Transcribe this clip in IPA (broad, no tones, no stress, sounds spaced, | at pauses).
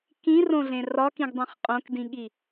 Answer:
k ĩ r õ ɮ ẽ r ɒ k ĩ ɡ dˤ ĩ χ qʼ õ k d ĩ ɠ i